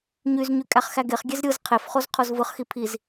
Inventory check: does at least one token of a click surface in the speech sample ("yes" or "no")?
no